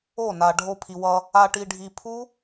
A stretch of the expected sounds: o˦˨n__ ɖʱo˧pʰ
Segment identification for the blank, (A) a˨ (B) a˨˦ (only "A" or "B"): A